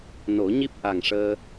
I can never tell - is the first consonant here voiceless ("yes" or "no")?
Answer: no